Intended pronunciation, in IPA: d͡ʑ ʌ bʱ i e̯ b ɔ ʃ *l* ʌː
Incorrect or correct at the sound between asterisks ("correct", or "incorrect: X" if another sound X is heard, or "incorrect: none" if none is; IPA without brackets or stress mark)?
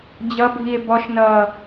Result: incorrect: n